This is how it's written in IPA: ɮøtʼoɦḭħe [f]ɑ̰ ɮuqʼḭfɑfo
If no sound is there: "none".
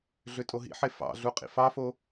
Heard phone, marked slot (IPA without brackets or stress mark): f